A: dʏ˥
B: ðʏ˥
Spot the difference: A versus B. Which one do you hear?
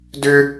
A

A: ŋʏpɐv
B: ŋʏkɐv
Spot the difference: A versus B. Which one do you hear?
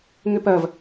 A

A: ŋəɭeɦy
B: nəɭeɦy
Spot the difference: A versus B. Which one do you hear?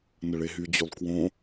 B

